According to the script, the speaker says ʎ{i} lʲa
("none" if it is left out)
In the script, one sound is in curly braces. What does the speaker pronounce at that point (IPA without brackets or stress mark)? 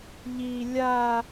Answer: i